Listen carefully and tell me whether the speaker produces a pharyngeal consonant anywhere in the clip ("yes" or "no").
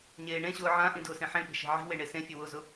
yes